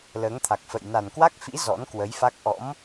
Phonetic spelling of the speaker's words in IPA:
l əː˨˦ ŋ t̪ʰ a˨˩ k̚ f ə̰˧˨ j n a˨˩ n k w a˦˥ k̚ f ḭ˧˥ z ɔ̰˧˥ n k w ə˨˦ j f a˦˥ k̚ ʔ ɔ̰˧˥ m

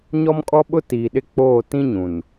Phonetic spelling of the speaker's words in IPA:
ɲ ɔ˦ m kʼ ɔ˦ ɓ ʊ˦ t iː˨ ɗ ɪ˦ k͡p oː˦˨ t ĩ˦ ɲ ũ˨ n

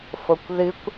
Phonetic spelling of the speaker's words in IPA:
f o kʷ ð ɨ kʷ

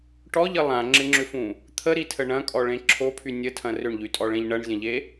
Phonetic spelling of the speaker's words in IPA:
ʈ ɔ ʎ ə lˠ ã ŋ͡ǁ ɪ ŋ͡ǁ ʏ f ũ | t̪ʰ ə ɾ i tʰ ə ɳ ɐ̃ kʼ ɔ ɭ ẽ ǁʰ o pʰ y nʲ ə tʰ ɐ̃ r ʏ ɳ ʎ y tʼ ɔ ɭ ẽ ʎ ɳ ɐ ɳ zʲ ɐ̃ ʎ e

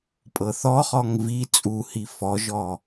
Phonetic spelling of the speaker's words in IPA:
pʼ ɤ θ ɔ χ ɔ ŋ v i t͡sʼ u h i f ɔ ʒ ɔ

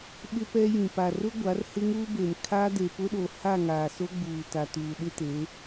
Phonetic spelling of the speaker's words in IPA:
ɓ ɪ˦ p ɛ˦ j ĩ˨ p a˨ r ʊ˦ ɡʷ a˨˦ r h ɪ˦ ŋ uː˦ b e˨ n kʰ a˦ d e˨ p ʊ˦ ɗ o˨ h a˦˨ ŋ a˨ s o˦ ɡ͡b uː˨ t a˨ t uː˨ ɗ ɪ˦ t e˨˦

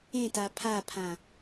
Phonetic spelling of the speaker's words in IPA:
ẽ t a pʰ a pʰ ã

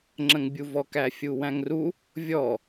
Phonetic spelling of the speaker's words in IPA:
ŋ͡ǁ ə̃ ŋ bʲ u v ɔ k æ fʲ u w æ̃ ŋ r u | vʲ ɔ

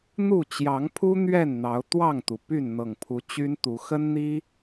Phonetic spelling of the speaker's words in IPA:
n̪ u˥˨ t͡ɕ j ɑ˨˦ ŋ pʰ u˦ n̪ ɥ ɛ˥˨ n n̪ ɑ˨˦ ʊ̯ t̪ w ɑ˥˨ ŋ t̪ u˩ p y˥˨ n n̪ ɤ˨˩ ŋ pʰ u˨˦ t͡ɕ y˦ n t̪ u˨˦ x ə˦ n n̪ i˦

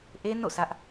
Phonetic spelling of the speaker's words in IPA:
ʔ e˦ n o̰˦˨ s ä˦ ʔ

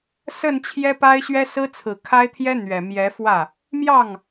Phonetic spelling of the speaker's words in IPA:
s ə˥˩ n t͡ɕʰ j ɛ˥ p a˥ ɪ̯ ɕ ɥ ɛ˥ s ɹ̩˥ t͡sʰ ɹ̩˨˩ kʰ a˥ ɪ̯ t̪ʰ j ɛ˥ n̪ ɥ ɛ˨˩ m j ɛ˧˥ f w ä˥˩ | m j ɑ˥˩ ŋ

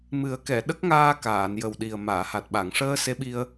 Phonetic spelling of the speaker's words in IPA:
m ɨ˨˩˦ ə̯ k ɛ˨˩˨ ɗ ə˦˥ k̚ ŋ aː˧ k aː˨˩˨ n j ə˨˩ w ɗ i˨˩ ə̯ m aː˨˩˨ h a˨˩ t̚ ɓ a˨˩˨ ŋ ʂ əː˧ s e˧˥ ɓ i˧ ə̯

